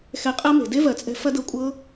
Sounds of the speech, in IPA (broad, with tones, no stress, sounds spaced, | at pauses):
x ɛ˧ qʼ ɜ˦ m e̤˨ d e˦ v ɜ˨ t͡sʼ ɛ̤˧ f ɐ˦ d ɤ˧ kʷʼ ɤ˦